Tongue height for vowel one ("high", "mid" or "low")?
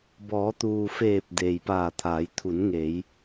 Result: mid